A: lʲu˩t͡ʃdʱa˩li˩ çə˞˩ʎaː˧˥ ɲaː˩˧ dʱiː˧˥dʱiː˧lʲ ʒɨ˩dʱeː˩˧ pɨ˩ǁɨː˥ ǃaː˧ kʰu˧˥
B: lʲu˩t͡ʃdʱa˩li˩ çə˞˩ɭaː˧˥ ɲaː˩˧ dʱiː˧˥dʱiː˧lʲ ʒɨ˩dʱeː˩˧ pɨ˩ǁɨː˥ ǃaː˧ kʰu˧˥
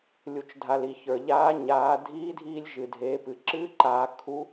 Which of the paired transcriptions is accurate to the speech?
A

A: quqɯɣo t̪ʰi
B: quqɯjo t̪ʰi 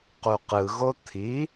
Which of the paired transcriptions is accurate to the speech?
A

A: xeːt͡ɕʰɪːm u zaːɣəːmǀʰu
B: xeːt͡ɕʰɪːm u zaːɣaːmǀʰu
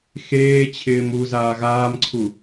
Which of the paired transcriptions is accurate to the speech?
B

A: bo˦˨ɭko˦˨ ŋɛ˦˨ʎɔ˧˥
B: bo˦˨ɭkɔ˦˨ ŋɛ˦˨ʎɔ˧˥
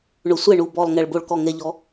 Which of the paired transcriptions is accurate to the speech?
B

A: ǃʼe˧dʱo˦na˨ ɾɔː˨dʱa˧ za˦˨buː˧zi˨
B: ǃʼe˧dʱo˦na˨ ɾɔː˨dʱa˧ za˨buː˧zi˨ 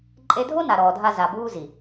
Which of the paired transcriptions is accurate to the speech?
B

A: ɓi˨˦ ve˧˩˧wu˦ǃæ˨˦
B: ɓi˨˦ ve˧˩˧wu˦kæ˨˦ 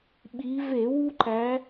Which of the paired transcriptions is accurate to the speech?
A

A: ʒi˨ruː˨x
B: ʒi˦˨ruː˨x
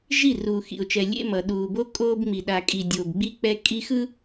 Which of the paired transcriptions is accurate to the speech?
B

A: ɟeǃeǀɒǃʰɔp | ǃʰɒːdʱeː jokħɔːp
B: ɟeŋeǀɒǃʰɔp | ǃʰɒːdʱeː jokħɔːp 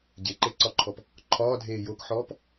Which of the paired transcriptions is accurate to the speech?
A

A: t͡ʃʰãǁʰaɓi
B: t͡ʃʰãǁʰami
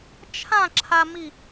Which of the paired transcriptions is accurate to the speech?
B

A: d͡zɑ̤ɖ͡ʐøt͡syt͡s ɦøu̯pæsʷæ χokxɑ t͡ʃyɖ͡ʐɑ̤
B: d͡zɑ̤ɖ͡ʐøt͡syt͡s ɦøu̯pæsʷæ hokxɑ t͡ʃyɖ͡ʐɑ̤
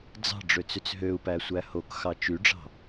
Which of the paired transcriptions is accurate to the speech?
B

